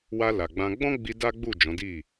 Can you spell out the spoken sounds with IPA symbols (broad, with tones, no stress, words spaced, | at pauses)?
wa˧ la˨ɡ͡bã˧ ɡ͡bɔ̃˦ ɡ͡bi˧ da˦ɡ͡bu˦˨ d͡ʒɔ̃˨˦di˦˨